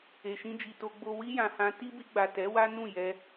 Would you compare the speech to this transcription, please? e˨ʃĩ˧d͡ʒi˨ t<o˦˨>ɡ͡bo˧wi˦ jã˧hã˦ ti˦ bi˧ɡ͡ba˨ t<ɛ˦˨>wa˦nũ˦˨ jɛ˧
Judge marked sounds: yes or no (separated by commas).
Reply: no, no